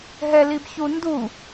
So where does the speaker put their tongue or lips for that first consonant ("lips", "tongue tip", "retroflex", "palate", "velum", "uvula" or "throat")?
throat